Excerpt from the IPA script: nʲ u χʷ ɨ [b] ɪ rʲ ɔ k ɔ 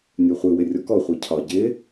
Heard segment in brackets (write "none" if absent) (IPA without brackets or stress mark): w